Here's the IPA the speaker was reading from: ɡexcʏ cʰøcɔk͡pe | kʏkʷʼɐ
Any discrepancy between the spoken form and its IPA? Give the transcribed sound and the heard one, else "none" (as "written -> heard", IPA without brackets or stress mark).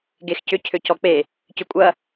k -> c